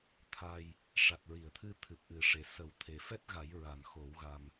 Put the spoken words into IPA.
t̪ʰa˧j | ʂa˨˩t̚ɹi˨˩˨ə̯t̪ʰɨ˧ t̪ʰɨ˨˩p̚ʔɨ˨˩ʂe˨˩sə˨˩˦w t̪ʰe˨˩fɛ˦˥t̚ɣa˨˩˦j ɹa˨˩˨nxo˨˩˦wɣa˧m

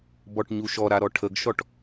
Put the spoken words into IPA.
bɔʈɲuʃɔɾa ɾɔʈʰəɡʃɔʈ

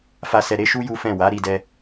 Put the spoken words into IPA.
fa˦sɛ˧ ɾe˦ʃu˦ ju˦fɛ̃˦˨ wa˨˦ɾi˧dɛ˧

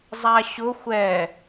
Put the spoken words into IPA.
zˤaɕʊ xʷɛ

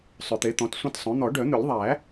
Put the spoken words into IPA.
sˤʏ˨˩˦t̪e˩˥t̪ɔ̃˩˥t sʷẽ˦tsˤœ̃˩˥ n̪ɔ˨˩˦ɖœ˨˩˦n̪ʏ˨˩˦lʲðˤæ˨˩˦

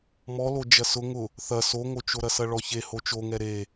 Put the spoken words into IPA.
mɔlo d͡ʒɐsʊ ŋʊ | θɐ soŋot͡ʃoɾɐ sɐɭɔçe hot͡ʃoŋɛ ɾe

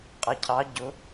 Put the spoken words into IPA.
qʼʌcʰɑ ɟʊ

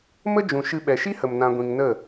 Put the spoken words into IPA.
mə˦d͡ʒũ˨ ʃɨ˧ ɓɛ˨ʃi˦hə˨m nã˧ɡʷĩ˧ŋ nə˦˨

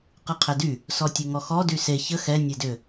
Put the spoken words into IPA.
qɨqʰɛdy | sɔtʲɨŋɔxɔ dyse çə xɛ nʲedʏ

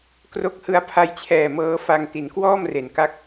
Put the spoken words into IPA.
kro˦˥k̚hɯ˧a̯ pʰa˧jt͡ɕʰɛː˨˩ mɤː˦˥fa˧ŋ ti˩˦nkwɔː˥˩mre˩˦n ka˦˥k̚

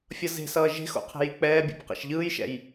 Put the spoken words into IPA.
fʲʌze̤sʌː ʒe̤xo̰ qʰe̤jik͡pɛːbʲṵp qɛ̰ʃʎɯːjʃɛ̰j

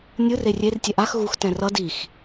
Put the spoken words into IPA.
nʲɯr erʲer tʲɛʔax ɣux tɛ̃rʌ dix

